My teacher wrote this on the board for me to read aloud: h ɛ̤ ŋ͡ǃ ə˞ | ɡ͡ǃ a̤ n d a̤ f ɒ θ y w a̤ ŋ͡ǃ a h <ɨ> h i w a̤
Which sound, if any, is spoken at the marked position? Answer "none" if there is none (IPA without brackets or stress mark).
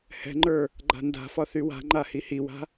i